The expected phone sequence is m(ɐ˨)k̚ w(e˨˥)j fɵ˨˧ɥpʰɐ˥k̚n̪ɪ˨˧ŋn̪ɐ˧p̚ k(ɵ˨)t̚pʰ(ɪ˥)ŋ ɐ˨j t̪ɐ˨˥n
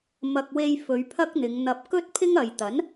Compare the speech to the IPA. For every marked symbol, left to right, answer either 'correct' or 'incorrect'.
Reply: correct, incorrect: e˧, incorrect: ɵ˥, correct

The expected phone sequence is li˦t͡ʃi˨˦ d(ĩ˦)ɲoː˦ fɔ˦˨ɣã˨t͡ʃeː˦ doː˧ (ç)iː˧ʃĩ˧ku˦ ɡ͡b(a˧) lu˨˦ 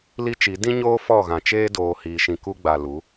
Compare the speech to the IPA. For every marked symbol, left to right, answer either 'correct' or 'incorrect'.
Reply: correct, incorrect: h, incorrect: a˨

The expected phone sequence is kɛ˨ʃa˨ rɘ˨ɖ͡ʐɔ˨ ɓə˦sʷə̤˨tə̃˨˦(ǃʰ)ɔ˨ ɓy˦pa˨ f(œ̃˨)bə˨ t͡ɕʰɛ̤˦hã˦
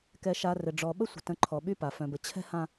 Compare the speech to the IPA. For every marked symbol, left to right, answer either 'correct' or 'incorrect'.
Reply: correct, correct

